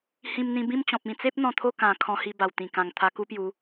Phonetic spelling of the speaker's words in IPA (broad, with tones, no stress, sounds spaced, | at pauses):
h ĩ˧ m n̪ ĩ˧ b ĩ˥˧ m t͡ɕ ɔ̃˨ p̚ ĩ˧ t͡s e˦ p̚ n̪ ɔ̃˧ t̪ʰ o˥˧ k ã˨˩ kʰ ɔ̃˧ h i˧ b a˨˩ w t̪ ĩ˨˩ k ã˨˩ ŋ t̪ʰ a˧ k u˦ p j u˨˦